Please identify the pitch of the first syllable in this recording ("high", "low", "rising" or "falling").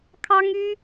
high